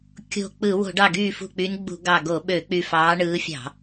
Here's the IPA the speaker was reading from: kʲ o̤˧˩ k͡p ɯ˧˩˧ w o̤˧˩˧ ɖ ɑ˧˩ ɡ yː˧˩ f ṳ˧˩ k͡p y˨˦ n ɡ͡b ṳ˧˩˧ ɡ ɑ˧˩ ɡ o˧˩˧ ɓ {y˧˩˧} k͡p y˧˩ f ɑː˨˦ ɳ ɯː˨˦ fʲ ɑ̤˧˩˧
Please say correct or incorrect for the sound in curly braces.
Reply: incorrect